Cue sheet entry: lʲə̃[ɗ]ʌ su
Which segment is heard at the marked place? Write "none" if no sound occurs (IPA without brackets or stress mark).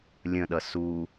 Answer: ɗ